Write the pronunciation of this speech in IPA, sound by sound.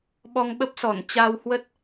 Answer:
ɓ ɔ˧ ŋ ɓ ə˦˥ p̚ s ɔ˧˩ n t͡ɕ a˧ w h w ə˦˥ t̚

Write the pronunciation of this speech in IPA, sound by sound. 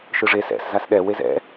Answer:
ʃ ɯ ʐ e s ɛ̰ s z a s ɗ ɛ w e z ɛ̰

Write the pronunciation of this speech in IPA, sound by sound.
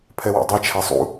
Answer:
pʰ ɛ w a̰ dˤ ɛ t͡ʃʰ a sˤ ṵ

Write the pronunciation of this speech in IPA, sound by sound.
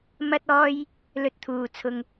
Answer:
m ɐ˥ t̚ ɔː˥ j | l ɵ˧ t̚ t̪ʰ uː˨ t͡sʰ ʊ˧ ŋ

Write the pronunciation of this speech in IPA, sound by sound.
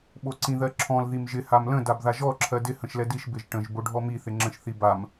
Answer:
ɓ o ǀ ĩ ð ɜ ǁʰ ɔ̃ l ð i m ʒ ɪ h a m l ə̃ d a b ð a ʒ ɔ ǁʰ ɜ d ɪ h ə̃ ʃ l ɛ d i ʃ b ɪ ʒ ʈ ə̃ ʒ b o ɖʱ ɔ m i θ ɪ ŋ͡ǁ ə̃ ʃ θ i b a m

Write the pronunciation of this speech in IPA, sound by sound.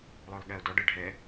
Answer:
lˠ œ lˠ ɠ ɛ o̯ d ɔ ɖ ɜ ɖʱ ɛ

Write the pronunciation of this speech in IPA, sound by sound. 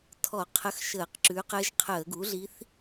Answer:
tʰ ɔ˧˩˧ qʰ ə˧˥ x ʃ əː˧˩˧ q ǁ ʉ˩˥ q ɘ˧˥ ʒ qʰ əː˧˩˧ ɡ u˩˥ ɮ i˧˥ θ

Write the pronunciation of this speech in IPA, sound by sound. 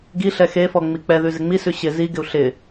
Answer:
ɡ i ɬ ɛ x e f ɔ ŋ͡m i k͡p ɛ ð ʉ z ɪ ŋ͡m i s ʉ ɕ ɪ z i ɡ ɪ u̯ ɬ ɪ

